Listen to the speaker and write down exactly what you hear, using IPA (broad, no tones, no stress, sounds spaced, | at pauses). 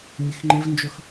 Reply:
mʲ e x ŋ͡ǃ e v n d͡ʒ œ x